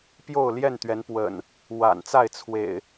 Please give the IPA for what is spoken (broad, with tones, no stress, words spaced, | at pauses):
pjo˥˨ʊ̯ljɛ˥˨nt̪ɥɛ˨˦n pwə̰˨˩n | wa̰˨˩nt͡sa˥˨ɪ̯ t͡sʰwḛ˨˩ɪ̯